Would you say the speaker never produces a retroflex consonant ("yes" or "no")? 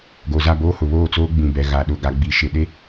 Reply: yes